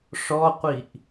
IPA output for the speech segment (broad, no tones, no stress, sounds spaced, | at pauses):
ʂ ɔ qʷ i ʔ